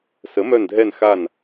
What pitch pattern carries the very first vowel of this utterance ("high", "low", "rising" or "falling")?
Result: rising